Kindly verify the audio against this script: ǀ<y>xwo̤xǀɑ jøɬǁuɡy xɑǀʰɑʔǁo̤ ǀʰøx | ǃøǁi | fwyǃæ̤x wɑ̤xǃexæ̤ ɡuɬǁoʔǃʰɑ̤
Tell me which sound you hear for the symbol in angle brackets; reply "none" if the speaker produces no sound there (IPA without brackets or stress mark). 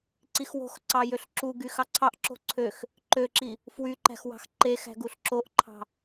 i